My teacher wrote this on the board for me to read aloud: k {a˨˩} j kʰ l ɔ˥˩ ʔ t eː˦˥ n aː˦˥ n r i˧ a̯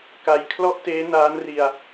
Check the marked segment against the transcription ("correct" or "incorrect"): incorrect